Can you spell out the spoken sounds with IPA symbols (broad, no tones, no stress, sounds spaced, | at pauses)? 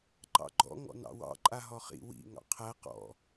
ǃ ɑ̰ ɡ͡ǃ ɔ̰ ŋ ɔ̰ n ɑ̰ w ɑ̰ ǃʼ a ɦ ɔ χ ḭ w ḭ ŋ ɑ̰ qʰ æ q ɔ̰